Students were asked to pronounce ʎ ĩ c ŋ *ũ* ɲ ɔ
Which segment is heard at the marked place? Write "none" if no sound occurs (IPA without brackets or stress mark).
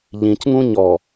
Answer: ũ